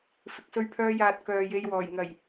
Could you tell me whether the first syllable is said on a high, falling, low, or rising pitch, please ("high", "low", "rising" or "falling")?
low